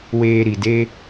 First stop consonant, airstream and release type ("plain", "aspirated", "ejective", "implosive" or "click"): plain